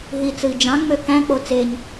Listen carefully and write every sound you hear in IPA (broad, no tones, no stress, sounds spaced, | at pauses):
ɦ i t͡s ɯ i̯ d͡ʒ ɑ̃ ŋ͡m ø k æ̃ k͡p o t͡s e ɲ